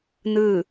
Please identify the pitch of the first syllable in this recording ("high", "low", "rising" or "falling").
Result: falling